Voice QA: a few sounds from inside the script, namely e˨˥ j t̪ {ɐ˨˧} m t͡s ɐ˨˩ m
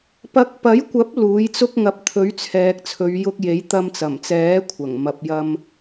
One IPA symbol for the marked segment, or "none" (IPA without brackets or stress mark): ɐ˧